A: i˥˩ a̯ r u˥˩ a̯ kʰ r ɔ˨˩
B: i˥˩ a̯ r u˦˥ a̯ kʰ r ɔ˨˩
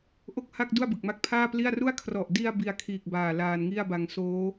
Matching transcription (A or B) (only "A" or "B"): A